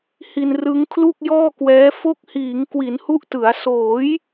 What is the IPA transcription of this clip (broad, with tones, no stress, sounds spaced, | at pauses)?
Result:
h i˧ n r ɯ˦˥ ŋ kʰ l u˥˩ k̚ j ɔː˥˩ k w ɛː˦˥ f o˦˥ k̚ h iː˩˦ ŋ k w i˩˦ n h u˦˥ ʔ t ɯ˩˦ a̯ s oː˩˦ j